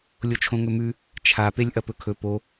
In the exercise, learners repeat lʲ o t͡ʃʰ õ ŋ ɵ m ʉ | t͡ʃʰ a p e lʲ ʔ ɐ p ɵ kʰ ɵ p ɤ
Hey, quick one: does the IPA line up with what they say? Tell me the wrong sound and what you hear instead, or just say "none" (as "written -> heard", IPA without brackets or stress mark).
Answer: ɤ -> o